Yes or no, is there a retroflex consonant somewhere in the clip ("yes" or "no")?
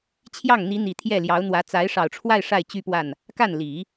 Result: yes